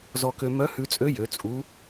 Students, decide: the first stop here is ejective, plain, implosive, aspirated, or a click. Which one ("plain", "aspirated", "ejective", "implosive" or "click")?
plain